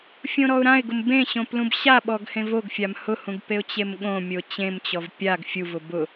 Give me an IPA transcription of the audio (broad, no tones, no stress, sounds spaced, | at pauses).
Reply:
fʲ õ ɾ ɔ ʊ̯ ɾ ã ɪ̯ ɡ ʊ m b ẽ ɕ õ p l ũ b ɕ a ɓ ɔ ɡ h ẽ v o ɡ fʲ a m h ʊ h ũ ɡ p e ʊ̯ t͡ɕ e m ɠ õ mʲ o t͡ɕ ẽ m t͡ɕ ɔ v pʲ a ɡ fʲ u v ʊ b ʊ